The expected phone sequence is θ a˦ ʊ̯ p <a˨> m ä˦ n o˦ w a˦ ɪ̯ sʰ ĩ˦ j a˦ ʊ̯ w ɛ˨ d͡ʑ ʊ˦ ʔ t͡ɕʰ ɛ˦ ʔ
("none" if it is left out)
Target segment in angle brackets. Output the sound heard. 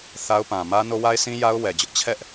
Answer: ã˨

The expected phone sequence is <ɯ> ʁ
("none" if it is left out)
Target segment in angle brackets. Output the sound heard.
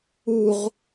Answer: u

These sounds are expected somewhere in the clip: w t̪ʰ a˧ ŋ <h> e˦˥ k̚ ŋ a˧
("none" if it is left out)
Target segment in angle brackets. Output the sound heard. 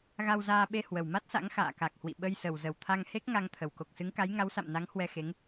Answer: h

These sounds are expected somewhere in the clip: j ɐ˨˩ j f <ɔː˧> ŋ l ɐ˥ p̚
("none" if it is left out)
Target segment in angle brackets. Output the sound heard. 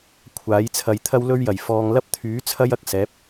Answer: ɔː˧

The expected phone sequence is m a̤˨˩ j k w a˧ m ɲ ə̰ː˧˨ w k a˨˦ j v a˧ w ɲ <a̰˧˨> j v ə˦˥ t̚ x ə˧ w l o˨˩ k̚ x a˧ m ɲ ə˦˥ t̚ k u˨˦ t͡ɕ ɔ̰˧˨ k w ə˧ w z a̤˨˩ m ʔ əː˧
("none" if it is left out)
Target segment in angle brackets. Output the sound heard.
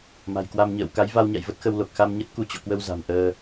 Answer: a̰˧˨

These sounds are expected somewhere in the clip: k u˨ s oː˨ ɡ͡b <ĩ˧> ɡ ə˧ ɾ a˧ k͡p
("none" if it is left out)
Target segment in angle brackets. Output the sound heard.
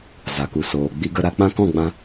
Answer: i˧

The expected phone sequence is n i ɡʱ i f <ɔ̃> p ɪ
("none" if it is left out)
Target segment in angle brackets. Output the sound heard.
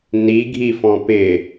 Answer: ɔ̃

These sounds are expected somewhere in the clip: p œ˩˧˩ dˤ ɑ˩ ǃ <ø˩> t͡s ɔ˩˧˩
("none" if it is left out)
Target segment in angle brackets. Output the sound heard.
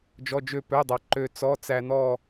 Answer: ø˩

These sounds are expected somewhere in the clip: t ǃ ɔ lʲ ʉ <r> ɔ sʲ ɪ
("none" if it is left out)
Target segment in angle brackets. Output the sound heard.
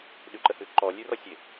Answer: r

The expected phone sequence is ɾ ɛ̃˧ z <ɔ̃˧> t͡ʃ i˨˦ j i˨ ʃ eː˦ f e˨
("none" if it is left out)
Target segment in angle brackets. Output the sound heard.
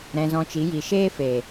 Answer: ɔ̃˧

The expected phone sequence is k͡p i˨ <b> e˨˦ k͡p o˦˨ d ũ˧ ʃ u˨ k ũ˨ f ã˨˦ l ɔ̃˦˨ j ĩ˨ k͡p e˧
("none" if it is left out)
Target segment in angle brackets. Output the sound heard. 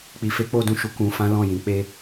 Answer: f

